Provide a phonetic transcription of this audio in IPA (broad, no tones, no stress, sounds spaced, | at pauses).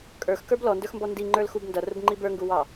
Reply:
kʼ ə˞ x k ə˞ b l ɔ n d ə˞ x m b ɔ n d i ŋ͡ǃ ə˞ l x u b n d ʌ r ʊ b ŋ͡ǃ i b ə˞ ŋ ɡ u w ɑ